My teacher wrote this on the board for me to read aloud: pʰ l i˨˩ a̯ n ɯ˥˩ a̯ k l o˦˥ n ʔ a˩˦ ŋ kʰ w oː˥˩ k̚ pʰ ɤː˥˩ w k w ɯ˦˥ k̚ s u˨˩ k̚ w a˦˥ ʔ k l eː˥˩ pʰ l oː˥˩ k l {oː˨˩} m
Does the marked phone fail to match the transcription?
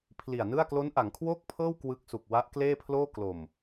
yes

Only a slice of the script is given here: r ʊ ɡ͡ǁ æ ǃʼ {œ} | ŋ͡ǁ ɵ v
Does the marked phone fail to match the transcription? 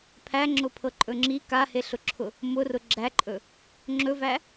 yes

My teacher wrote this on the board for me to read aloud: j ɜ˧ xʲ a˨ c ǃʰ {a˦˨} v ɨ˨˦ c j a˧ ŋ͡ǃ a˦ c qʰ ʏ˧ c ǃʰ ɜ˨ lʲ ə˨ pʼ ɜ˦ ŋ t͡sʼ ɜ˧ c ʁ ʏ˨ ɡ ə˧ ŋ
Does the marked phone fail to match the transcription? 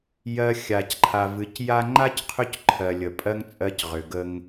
yes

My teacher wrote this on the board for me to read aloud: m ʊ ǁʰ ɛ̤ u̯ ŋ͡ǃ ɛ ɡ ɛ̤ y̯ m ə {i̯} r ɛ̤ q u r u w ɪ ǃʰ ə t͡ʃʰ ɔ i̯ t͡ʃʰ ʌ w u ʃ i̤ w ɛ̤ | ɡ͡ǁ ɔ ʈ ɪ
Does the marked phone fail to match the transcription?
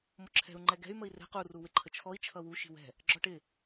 no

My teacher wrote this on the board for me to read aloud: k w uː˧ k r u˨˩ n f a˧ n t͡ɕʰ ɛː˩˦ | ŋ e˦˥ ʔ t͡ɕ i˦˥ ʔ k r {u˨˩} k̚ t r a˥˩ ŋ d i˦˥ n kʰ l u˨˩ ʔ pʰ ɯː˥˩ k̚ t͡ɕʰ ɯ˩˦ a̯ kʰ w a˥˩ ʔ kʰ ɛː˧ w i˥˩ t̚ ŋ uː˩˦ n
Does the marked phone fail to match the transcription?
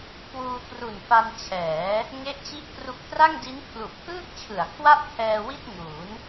no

